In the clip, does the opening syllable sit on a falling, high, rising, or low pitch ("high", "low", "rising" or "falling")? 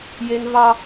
high